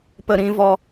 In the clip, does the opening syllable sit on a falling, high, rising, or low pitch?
low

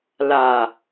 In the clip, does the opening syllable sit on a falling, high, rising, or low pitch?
low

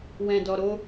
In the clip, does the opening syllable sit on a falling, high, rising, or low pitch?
low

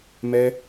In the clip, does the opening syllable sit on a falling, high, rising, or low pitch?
high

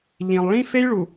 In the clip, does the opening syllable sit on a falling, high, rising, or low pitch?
low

